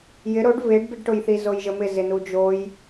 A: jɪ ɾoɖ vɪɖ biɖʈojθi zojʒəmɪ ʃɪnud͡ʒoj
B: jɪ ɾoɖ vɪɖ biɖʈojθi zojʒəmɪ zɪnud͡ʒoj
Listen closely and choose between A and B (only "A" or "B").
B